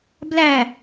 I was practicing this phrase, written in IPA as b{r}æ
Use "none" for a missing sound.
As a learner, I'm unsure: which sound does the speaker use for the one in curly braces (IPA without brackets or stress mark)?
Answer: l